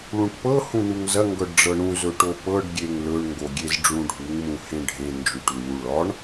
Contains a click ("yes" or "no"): no